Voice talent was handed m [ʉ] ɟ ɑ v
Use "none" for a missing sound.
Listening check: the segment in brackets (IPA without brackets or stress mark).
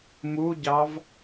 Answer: u